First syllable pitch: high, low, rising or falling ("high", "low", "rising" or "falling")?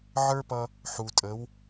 high